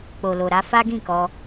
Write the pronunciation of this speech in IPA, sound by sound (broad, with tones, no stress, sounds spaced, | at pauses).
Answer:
k͡p o˨ l o˨ ɾ a˧ f a˦ ɡ ĩ˦˨ k ɔ˧